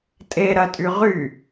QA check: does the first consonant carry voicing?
no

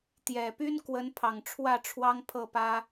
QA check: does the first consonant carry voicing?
no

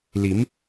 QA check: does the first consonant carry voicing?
yes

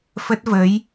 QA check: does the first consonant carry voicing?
no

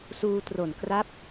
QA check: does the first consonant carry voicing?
no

